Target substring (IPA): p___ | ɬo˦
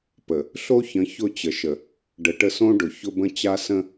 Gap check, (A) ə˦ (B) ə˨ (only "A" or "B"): B